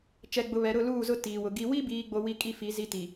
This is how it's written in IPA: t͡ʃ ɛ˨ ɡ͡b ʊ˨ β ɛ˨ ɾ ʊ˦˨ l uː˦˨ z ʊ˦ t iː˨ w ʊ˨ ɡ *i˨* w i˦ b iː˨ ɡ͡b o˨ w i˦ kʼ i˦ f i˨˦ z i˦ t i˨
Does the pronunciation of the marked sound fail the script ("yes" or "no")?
no